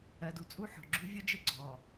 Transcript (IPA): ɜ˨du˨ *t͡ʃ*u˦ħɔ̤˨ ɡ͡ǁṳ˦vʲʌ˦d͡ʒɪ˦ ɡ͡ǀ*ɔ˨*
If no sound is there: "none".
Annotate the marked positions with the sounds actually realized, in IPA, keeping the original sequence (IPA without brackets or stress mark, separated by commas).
t͡sʼ, ɔ˨